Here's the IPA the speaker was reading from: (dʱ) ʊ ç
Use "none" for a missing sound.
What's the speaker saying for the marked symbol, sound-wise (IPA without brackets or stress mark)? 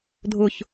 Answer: dʱ